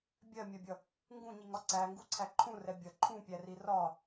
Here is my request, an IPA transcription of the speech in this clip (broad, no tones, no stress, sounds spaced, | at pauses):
bʲ ɜ mʲ ɜ bʲ ʌ | ŋ ɡ ũ ɲ i ŋ ɒ ǀ æ ŋ ɡ u ǀʰ æ ǃʰ ũ r ɛ bʲ ʌ ǃʰ ũ pʲ æ r i r ɒ